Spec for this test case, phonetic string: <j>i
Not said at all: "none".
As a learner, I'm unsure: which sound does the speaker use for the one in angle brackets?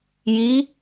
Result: j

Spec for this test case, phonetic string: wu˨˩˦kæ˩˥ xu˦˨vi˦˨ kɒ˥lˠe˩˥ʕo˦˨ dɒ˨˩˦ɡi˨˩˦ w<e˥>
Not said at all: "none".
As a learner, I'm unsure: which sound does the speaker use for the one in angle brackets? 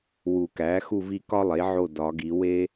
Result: e˥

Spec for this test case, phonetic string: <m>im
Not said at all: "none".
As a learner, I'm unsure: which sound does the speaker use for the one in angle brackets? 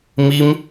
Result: m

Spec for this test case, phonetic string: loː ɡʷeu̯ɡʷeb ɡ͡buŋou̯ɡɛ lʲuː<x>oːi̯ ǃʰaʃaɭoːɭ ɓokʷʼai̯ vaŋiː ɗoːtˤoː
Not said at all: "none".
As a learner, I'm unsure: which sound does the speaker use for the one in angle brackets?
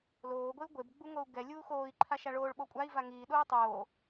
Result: x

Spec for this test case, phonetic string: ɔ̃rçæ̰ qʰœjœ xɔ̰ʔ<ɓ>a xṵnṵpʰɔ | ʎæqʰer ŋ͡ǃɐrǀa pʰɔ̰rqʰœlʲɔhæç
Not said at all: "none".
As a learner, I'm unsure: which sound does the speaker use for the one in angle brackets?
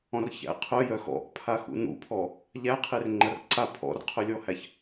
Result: pʰ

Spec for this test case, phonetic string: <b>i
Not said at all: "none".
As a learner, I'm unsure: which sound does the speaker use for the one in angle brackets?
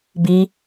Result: b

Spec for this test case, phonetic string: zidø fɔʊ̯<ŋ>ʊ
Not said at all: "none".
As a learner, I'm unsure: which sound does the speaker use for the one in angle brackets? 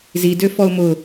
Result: m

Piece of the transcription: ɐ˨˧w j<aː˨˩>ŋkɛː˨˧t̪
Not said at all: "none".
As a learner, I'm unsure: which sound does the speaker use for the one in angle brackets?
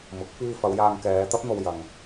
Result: aː˧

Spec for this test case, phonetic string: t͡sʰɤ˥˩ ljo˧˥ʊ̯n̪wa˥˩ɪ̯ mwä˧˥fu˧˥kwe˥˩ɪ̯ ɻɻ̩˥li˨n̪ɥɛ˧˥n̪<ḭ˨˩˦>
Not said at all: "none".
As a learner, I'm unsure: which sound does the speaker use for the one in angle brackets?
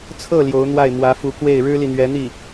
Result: i˥˩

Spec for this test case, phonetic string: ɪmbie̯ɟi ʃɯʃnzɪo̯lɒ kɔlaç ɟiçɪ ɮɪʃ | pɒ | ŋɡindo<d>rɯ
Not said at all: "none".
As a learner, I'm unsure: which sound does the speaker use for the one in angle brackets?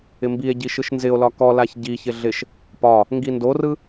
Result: none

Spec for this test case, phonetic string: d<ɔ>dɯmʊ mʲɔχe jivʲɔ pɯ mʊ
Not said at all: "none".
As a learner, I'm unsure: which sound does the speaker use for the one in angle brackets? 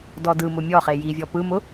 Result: ɔ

